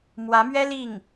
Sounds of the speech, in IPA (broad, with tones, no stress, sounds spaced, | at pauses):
m w ä˧˥ m ɥ ɛ˥ l i˥˩ ŋ